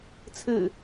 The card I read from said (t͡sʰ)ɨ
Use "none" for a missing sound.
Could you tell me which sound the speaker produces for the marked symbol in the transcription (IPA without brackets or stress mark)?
t͡sʰ